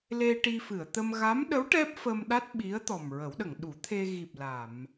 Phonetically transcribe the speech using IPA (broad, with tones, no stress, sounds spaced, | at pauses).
l e˧ ʈ i˧ f ɨ˨˩˨ ə̯ t̪ ə˧ m ɣ a˧˥ m ɗ ə˧˥ w ʈ ɛ˦˥ p̚ f ə˧ m ɗ a˦˥ t̚ ɓ i˧˥ ə̯ t̪ ɔ˨˩ m ɹ ə˨˩˦ w ɗ ə˨˩˨ ŋ ɗ u˨˩˦ t̪ʰ e˧ ɣ i˨˩ p̚ l a˨˩˨ m